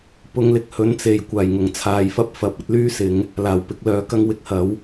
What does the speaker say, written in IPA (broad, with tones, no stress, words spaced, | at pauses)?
pʊ˧ŋlɪ˧k̚hɵ˨˥n t͡se˨j kʷaː˨˩jŋʊ˨˩ŋ t͡sʰaː˨˧jfɐ˥p̚fɐ˨˥p̚ ɐ˥t̚lyː˥sɪ˨˧ŋ | laː˨˩wpɪ˨˥k̚ lœː˨˥kɐ˥ŋwɪ˧k̚hɐ˨˥w